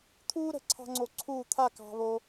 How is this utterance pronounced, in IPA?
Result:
t̪ʰ uː˦ ɾ ə̤˨˦ ǀʰ ɑ̤˦ ŋ͡ǀ o˧ ǀʰ uː˦˨ t̪ʰ a˦˨ k ɑ̤˦ β o˦

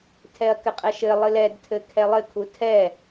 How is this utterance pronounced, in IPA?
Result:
tʰ ɛ ɐ̯ k ɘ qʼ ɛ ʃ ɘ lˠ ɨ l ɛ d tʰ ɘ kʰ ɛ lˠ ɘ kʰ u tʰ ɛ

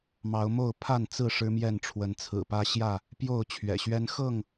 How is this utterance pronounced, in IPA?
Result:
m ɑ˨˦ ʊ̯ m o˥˨ ʊ̯ pʰ a˥˨ n t͡s ɹ̩˥˨ ʂ ɻ̩˦ m j ɛ˥˨ n ʈ͡ʂʰ w ə˨˦ n t͡sʰ ɹ̩˨˩ p ä˦ ɕ j ä˥˨ | p j o˥˨ ʊ̯ t͡ɕʰ ɥ ɛ̰˨˩ ɕ ɥ ɛ˦ n x ɤ˥˨ ŋ

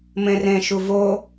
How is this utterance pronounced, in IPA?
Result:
m ẽ r ẽ ʃ u v o

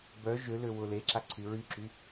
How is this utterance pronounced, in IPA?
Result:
b œ ʒ ø l ø w ʊ l e ǁ a ǀʰ y ɹ y ǁ y

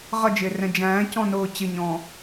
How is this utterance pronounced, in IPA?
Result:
ʁ ʌ d͡ʒ ɪː r ɛ̃ d͡ʒ æ̃ː c ɔ̃ n ʊː t͡ɕ ɪ ɲ ɔ̃ː

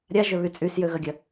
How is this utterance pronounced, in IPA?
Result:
ɾʲ a ʒ ø β y t͡sʼ y s j ø ɣ ɐ ɡʲ ɐ

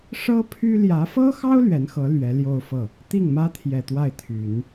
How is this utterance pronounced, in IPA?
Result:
ʂ ɤ˥ pʰ y˥ l j ä˧˥ f ɤ˥ x ɑ˥ ʊ̯ l ɥ ɛ˧˥ n x ɤ˧˥ l ɥ ɛ˧˥ l j o˥˧ ʊ̯ f ɤ˥˩ | t̪ i˥˩ ŋ m ä˥ t̪ʰ j ɛ˨˩ t̪ w a˥˩ ɪ̯ t̪ʰ y˨˩˦ n

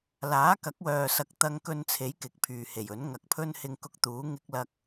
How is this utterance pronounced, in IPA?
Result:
l aː˨˥ k ɐ˨˥ k̚ w œː˨ s ɐ˨ k̚ t̪ ɐ˧ ŋ k ɵ˧ n t͡sʰ e˨˥ j k ɪ˨ k̚ pʰ yː˨ h e˨˩ j ɵ˨˥ n ŋ ɐ˨ k̚ pʰ ɵ˥ n h ɪ˧ ŋ k ʊ˧ k̚ t̪ uː˨˥ ŋ ɪ˥ k̚ l ɐ˥ k̚

